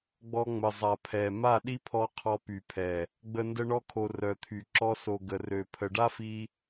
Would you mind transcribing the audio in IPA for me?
ɡ͡bɔ˧ŋ͡mə˨zˤa˨ pʰɛ˨ ma˦˨ɗi˦pʰɔ˧ qʰɔ˧py˨pʰɛ˨ | ɡ͡bə˧ ndə˧ɳɔ˧kʰo˨ rœ˨t̪ʰy˨ ǁɔ˧so˨ ɡə˨rø˨pʰə˨ ɖa˦fi˧

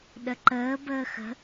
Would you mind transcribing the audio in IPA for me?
ɗəǃəːbəː xə̤

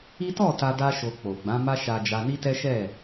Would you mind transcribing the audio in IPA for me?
i˦ tɔ˦˨ ta˧ da˦ʃo˧k͡po˨ ɡ͡bã˨˦ma˦ʃa˧d͡ʒa˧ ni˦tɛ˦ʃɛ˦˨

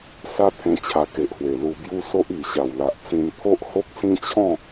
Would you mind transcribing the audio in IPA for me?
sa˦t̪ʰẽ˧ t͡ɕʰa˧ke˨ʔhwe˨˩ lu˧bju˦ so˦ʔ i˨˩ɕa˨˩wla˨ʔt͡sĩ˧n t̪ʰo˦ʔho˦k̚sĩ˦t͡ɕʰɔ̃˥˧

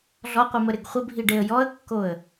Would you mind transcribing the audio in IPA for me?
ɮɔqʷimə ɾɪɡχʷəbʱi ɖeə̯jɔə̯kːoə̯

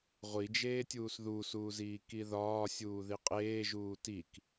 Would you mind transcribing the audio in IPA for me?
ʁʷid͡ʒeːtʲuːs ðusuːziː kiðɒː sʲuːðiqʼeːʒuː tik

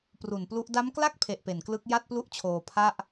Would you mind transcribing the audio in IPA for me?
pru˨˩nplu˦˥ʔ da˦˥mkla˥˩k̚pʰe˨˩ʔ pe˨˩nklɯ˦˥k̚ ja˥˩t̚plu˥˩ʔt͡ɕʰoː˧ pʰa˥˩ʔ

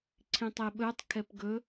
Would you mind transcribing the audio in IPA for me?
ǀʰĩtˤeɓɵtˤ kʰɛpɡɵ

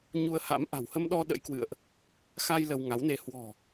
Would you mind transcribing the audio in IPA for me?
ɲu˧ə̯ha̰˧˥m ʔa̤˨˩whə˧mɗɔ˧ ɗə̰˧˥jkwɨ̰˧˨ə̯ʔ | xa˧j lə˧wŋa˨˦wne˧ hwɔ̤˨˩

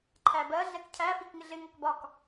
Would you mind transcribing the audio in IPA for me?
ǃʰæbɜ ɮɛkcʰæ fikŋɪɮɪ ŋʌkbɒk

